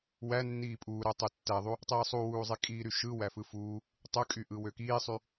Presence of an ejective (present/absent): present